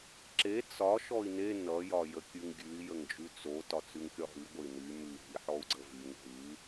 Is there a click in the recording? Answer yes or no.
yes